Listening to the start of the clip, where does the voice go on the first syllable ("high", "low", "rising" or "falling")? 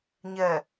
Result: low